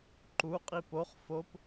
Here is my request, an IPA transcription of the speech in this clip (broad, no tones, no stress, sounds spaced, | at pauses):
ǃ u qʼ i p o χ f o p